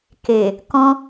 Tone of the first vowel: low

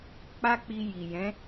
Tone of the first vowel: high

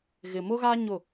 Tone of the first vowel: low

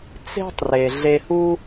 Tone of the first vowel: high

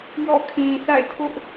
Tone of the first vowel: falling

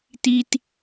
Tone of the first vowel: high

